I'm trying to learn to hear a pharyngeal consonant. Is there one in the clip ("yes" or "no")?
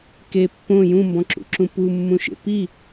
no